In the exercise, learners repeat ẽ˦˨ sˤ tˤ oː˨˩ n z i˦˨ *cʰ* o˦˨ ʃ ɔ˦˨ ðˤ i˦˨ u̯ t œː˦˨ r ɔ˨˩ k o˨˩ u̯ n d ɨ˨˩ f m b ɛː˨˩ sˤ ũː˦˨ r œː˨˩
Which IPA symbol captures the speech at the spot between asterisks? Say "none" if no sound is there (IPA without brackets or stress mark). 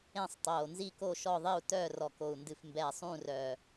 k